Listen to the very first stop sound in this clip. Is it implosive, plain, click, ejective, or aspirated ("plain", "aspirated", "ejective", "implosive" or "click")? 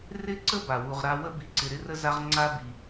click